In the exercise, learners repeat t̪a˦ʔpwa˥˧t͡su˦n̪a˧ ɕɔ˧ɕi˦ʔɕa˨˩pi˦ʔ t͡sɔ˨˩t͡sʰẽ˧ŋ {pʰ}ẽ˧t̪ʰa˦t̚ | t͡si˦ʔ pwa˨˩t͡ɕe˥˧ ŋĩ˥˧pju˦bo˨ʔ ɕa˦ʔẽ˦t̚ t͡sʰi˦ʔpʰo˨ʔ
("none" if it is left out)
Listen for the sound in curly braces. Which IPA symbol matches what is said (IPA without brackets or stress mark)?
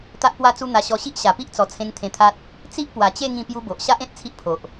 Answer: t̪ʰ